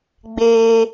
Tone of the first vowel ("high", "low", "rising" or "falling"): high